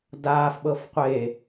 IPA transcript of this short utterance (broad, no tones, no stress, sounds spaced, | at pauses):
d aː f ɓ ɤ f qʷ e